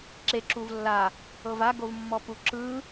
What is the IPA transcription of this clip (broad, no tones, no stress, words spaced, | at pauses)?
ǁeǁuv lːa | ɤva ɡovmːɔpuǁɯ